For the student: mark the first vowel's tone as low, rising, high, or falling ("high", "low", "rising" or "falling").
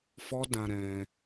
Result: high